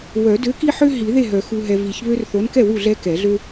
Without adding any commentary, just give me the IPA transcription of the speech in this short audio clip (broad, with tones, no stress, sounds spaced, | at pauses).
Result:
w œ˨˩˦ d ø˨˥ k i˦ ħ ø˦ ɦ i˨˩˦ ð e˥˩ ɦ œ˨˩˦ x u˨ ɦ ɛ˨ v i˨˩˦ ç β ø˦ r θ o˨˥ n k ɛ˥˩ w u˥˩ ɮ ɛ˦ k ɛ˨˩˦ ɮ ø˦